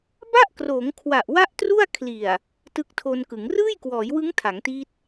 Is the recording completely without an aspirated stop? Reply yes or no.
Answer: no